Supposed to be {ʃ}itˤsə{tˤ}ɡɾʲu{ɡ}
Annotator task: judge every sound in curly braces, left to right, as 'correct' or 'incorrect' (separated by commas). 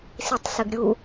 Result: incorrect, incorrect, incorrect